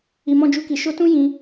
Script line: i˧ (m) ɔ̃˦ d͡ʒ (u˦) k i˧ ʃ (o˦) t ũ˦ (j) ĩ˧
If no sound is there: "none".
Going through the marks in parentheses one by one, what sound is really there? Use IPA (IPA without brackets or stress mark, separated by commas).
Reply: m, u˦, o˦, j